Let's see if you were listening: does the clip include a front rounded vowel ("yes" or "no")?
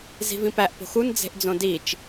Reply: no